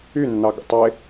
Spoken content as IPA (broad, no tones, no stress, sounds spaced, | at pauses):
y nː ɑ ɡ ə̰ tˤ e